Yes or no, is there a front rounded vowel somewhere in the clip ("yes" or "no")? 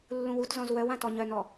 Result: yes